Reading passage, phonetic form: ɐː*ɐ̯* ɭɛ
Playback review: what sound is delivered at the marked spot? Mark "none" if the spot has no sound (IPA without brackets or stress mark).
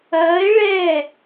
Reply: e̯